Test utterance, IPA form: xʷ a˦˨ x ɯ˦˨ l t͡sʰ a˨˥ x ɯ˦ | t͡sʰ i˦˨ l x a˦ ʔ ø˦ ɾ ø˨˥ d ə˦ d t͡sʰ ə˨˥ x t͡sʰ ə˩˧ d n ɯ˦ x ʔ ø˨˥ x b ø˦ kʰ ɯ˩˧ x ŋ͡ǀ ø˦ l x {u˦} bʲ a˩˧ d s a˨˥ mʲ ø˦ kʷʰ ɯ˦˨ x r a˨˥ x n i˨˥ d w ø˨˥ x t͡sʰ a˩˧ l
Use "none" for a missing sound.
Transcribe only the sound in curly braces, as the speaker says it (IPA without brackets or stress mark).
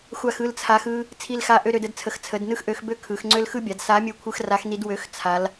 ɯ˦